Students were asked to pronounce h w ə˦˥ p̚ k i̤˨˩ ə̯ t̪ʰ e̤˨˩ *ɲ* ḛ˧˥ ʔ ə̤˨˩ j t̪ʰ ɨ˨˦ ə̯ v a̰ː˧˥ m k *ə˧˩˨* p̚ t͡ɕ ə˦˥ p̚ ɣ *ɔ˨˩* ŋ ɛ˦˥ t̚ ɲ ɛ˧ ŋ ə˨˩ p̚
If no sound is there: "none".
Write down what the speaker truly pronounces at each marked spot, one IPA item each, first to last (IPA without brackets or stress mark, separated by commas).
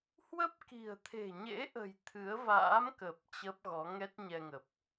ɲ, ə˨˩, ɔ˨˦